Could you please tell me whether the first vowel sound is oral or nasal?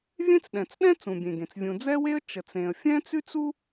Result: nasal